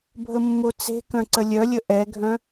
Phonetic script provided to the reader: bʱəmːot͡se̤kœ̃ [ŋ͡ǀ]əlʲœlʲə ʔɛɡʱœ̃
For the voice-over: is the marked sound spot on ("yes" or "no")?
no